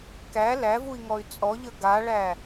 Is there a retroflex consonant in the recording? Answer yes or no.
yes